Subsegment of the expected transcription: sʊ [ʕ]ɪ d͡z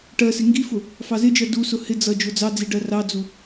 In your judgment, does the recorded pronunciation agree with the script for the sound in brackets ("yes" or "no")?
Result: no